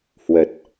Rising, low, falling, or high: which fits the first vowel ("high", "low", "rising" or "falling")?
low